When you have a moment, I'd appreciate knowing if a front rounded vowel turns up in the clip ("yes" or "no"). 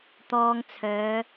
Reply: yes